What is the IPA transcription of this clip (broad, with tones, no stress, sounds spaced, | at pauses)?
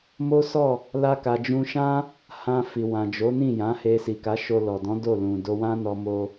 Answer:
m o˦ s ɔ˦˨ | l a˦ k a˧ d͡ʒ ũ˧ ʃ ã˦ | h ã˧ f i˨ w ã˨ d͡ʒ o˨˦ n ĩ˦˨ j ã˨˦ h e˧ s i˨ k a˨˦ ʃ o˧ l ɔ˨ d ɔ̃˨˦ d o˦˨ l ũ˨ d o˧ w ã˦ n ɔ˧ m o˧